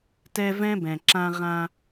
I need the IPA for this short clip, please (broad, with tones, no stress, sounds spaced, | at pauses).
t ɛ˦ v ɛ̃˦ b ɛ̃˨ ǁ ã˦ ʁ ã˦